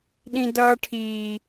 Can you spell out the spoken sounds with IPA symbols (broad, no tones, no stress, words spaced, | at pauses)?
ɗĩdʌːʈʰiː